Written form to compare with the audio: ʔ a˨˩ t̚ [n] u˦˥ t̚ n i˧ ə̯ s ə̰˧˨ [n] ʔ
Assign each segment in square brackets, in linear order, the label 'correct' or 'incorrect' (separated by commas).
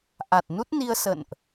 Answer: correct, correct